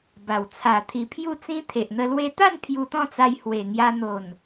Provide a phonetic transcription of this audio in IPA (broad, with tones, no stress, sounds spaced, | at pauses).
b a˨˩ w t͡sʰ a˨˩ t̪ʰ i˨˩ pʰ j u˥˧ t͡s ĩ˦ t̪ʰ e˨ ʔ n̪ ə˧ l w e˧ t̪ a˥˧ n pʰ j u˧ t̪ ɔ̃˥˧ t͡s a˧ j h w e˨˩ ŋ j a˧ n̪ o˨˩ n